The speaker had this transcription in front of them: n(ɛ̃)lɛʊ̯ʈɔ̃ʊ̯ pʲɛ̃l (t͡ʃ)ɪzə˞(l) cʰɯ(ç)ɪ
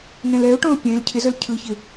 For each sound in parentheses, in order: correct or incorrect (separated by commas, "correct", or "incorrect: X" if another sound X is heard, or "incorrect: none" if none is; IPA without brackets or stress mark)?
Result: correct, incorrect: cʰ, correct, correct